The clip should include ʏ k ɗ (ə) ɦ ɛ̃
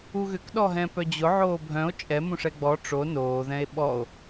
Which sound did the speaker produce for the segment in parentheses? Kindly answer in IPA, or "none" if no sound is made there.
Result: ɔ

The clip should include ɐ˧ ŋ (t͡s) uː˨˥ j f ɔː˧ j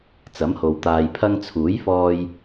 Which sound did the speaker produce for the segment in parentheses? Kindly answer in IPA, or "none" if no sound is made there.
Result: t͡sʰ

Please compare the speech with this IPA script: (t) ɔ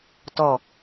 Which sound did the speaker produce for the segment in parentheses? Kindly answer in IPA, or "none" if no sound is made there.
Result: t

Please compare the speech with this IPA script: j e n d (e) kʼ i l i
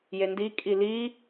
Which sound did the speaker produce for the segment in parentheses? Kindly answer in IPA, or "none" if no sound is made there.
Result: i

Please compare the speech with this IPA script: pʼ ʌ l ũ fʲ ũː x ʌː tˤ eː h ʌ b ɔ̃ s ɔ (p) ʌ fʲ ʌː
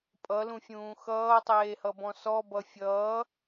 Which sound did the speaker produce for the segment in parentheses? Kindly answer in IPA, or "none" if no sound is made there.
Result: b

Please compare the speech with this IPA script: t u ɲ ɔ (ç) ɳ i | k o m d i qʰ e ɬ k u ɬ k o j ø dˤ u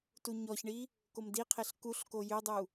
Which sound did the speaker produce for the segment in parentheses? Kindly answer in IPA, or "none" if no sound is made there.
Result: ç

